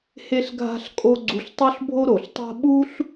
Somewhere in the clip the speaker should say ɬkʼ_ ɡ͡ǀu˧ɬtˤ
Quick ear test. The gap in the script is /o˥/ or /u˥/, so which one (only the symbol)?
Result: o˥